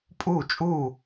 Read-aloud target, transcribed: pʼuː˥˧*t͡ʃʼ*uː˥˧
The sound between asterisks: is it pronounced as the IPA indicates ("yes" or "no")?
yes